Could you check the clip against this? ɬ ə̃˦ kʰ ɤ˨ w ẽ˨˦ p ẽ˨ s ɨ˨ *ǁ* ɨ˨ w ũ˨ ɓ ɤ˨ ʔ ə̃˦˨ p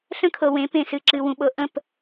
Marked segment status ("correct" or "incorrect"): correct